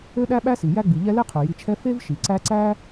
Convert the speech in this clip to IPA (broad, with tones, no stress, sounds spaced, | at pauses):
ø˥ ɗ æ˥ ɓ æ˥ s i˩ j æ˥ ɡ͡b i˨ ʎ ɛ˥ l e˥ qʰ ø˩ j i˨ t͡ʃʰ ɛ˦ f e˥ v ʃ i˩ ǀ æ˦ ǀ æ˥